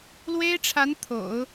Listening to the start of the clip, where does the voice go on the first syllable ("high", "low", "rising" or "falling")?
high